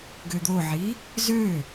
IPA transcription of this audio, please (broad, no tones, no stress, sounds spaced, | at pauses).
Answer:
ɡ ø d̪ o ʕ i | z ø